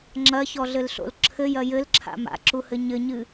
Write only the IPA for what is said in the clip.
ŋ͡ǁ ɐ ç ɔ ɮ ɘ l ɬ o̰ l ǁʰ ɘ j ɐ j ɘ l ǁʰ a̰ m a̰ ǁ u h ɘ ɲ ɘ ɲ ɨ

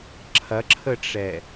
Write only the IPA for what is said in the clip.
ǁʰ ɐ ǁʰ ə ʈ͡ʂ ɛ

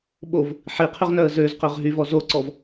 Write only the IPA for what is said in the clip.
ɓ o v | ħ i qʰ y ʁ n œ ə̯ z ø z q ø ʁ ɦ y v ɔ z o ǀ ɔ v

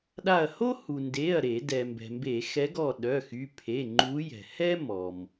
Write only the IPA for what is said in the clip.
ɗ a˧˩ ɐ̯ h o˥ h u˩ n d e˩˧˩ ɐ̯ ɾ e˧˩˧ d ɛ˩ m b ɛ̤˩ m b e˧˩˧ x ɛ˨˦ ɡ ɔ˧˩ ɗ œ˩˧˩ x y˩˧˩ pʰ e˩˧˩ ŋ͡ǃ u˨˦ j ɛ̤˩ h ɛ˥ m ɔ˩ m

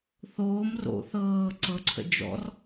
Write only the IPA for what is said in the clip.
θ oː m r o̰ θ ɤː ǀ ɤ ǀʰ ə̰ d͡ʒ ɔ̰ r

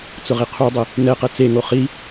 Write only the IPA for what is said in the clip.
t͡s ʊ ʁ i qʰ u dˤ ɪ | n ɛ q ɛ t͡s e ŋ o χ i

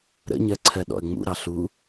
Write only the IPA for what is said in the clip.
ɾ ə̰ ɲ ɜ ǀʰ ɜ ɗ ɔ̰ ə̯ ŋ͡m ṵ ɾ ɑ ɬ u

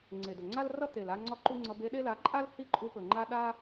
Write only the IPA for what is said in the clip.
ŋ͡ǀ e˨ d ɵ˨ ŋ͡ǀ a˦ l r ʌ˦ t̪ e˨ l a˦ ŋ͡ǀ ɒ˦ ǃ u˦ ŋ͡ǀ ʌ˧ b e˧ ɗ e˦ l a˨˦ ǃʼ a˦ l h i˦ ǃʼ u˧ p ɵ˨ ŋ͡ǃ a˦ ɗ a˦

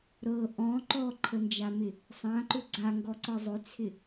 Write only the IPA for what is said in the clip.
ɾ ɤ ʔ ɔ̃ ǃ ɔ ǃʰ ə n d͡ʒ a m ɪ | sˤ ã ǃ ʏ ɡ͡ǀ a ŋ ɡ ɔ ǀ ɤ zˤ ʏ t͡sʰ ɪ

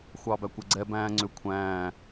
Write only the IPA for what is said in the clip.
xʷ ɑ b æ kʷ ɛ ɡ͡ǀ ɛ b æ̃ː ŋ͡ǀ ʏ kʷʰ æ̃ː

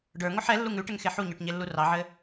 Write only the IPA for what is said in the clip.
ɖ ə˞ ŋ o ħ ɛ lː u ŋ ʉ ʈ ɘ ŋ x e ħ u ɲ ə˞ ʈ ɲ e lː u r ɑ ʕ ɘ

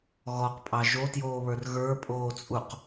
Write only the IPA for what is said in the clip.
ɣ ɔ q pʼ ɑ ʒ o t j oː β ə˞ r ɣ ə˞ pʼ oː t͡sʼ u q

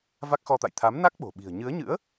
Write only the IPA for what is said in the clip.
v a˦˥ k̚ x ɔ˧ t̪ a̰˧˨ j t̪ʰ a˨˦ m n a˦˥ k̚ ɓ o̤˨˩ ɓ i̤˨˩ ə̯ ɲ ɨ˨˦ ə̯ ɲ ɨ̰˧˥ ə̯

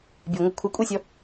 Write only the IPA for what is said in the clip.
bʲ e ŋʷ ɤ kʷʰ ɤ kʷʼ e sʲ ɔ

